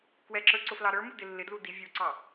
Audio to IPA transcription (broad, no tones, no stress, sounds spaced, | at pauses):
k w ɛ ǁ ə˞ ǀ ʊ f l ɑ ɾ ə˞ m u d ɪ lː ɪ d l u d i vʲ u ǀ ɑ